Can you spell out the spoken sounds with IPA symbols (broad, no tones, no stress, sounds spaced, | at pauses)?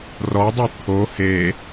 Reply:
r ɔ dˤ ɛ t̪ʰ o h e